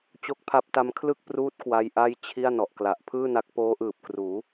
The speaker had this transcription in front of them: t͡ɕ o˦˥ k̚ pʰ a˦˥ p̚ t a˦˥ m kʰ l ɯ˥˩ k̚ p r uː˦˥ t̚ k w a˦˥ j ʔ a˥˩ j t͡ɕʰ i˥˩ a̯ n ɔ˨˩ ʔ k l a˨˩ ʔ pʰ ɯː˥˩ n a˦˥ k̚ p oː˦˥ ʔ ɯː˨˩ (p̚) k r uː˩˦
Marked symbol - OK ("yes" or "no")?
yes